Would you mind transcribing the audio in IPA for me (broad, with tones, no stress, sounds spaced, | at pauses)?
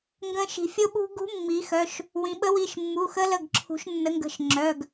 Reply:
ŋ ɡ ə̃˧˥ ʃ i̤˩˧ fʲ o˥ ɓ ṳ˥ ɡ ṳ˧˥ mː i˩˧ x œ˩˧˩ ʃ | w ĩ˩˧ ɓ ə˧˥ w i˩˧˩ ʃ mː u˩˧˩ x ə˧˥ l ə˩˧˩ ɡ ǁʰ ṳ˩˧ ʃ nː ə˩˧ ŋ ɡ ə̤˩˧˩ ʃ ŋ͡ǁ œ˩˧˩ ɡ